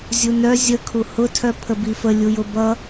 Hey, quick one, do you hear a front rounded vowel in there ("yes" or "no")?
yes